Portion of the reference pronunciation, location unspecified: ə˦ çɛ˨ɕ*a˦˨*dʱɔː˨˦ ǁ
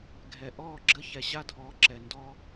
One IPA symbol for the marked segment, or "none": a˦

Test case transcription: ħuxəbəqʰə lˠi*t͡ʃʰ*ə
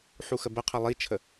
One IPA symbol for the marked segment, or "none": t͡ʃʰ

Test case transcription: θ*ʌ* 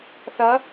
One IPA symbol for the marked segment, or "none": ʌ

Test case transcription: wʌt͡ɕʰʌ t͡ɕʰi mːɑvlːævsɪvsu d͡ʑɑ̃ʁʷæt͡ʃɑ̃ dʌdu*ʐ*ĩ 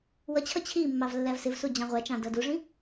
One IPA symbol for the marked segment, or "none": ʐ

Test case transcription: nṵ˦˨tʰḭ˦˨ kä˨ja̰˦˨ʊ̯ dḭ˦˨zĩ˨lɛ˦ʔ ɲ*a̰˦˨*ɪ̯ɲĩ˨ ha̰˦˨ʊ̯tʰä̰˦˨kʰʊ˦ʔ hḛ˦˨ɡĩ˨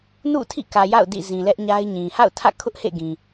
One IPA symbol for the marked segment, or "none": a˦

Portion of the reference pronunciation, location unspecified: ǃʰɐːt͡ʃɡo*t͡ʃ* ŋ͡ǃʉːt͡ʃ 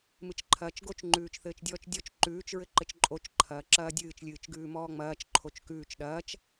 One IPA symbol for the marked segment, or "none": t͡ʃ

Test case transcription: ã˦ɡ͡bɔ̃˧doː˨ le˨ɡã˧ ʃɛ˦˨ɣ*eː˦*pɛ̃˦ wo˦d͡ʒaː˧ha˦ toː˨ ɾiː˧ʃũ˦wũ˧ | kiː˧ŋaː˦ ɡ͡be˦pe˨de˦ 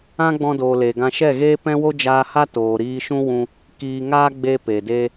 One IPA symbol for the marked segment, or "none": eː˦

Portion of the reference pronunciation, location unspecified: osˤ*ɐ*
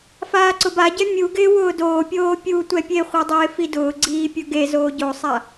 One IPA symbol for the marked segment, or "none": a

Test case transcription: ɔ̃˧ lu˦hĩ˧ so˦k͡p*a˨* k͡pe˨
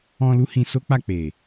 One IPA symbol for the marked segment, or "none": a˦˨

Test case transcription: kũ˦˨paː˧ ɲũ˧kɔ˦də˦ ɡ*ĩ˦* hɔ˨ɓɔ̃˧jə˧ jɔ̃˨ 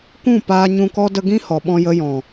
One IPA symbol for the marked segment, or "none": ĩ˦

